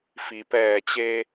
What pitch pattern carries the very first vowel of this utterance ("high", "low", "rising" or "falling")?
low